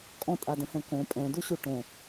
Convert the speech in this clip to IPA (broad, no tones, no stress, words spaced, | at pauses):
kʼɔ̃tʼadə̃hɛ̃ kõ pʼɛ̃duɕu ʈõ